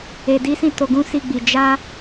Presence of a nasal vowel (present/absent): present